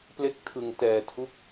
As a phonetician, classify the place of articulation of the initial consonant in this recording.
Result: labial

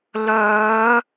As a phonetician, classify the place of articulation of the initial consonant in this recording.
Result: alveolar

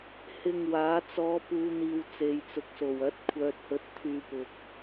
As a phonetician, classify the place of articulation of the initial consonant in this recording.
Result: glottal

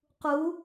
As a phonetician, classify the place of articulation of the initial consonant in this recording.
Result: uvular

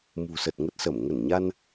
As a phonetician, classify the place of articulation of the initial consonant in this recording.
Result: labial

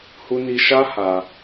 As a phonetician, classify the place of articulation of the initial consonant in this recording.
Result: glottal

